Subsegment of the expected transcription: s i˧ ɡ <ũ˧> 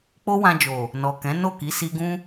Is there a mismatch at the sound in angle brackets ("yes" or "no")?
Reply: yes